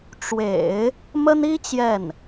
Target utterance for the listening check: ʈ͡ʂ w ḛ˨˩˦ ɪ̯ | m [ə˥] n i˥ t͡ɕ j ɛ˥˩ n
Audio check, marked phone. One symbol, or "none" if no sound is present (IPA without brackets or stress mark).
ə˥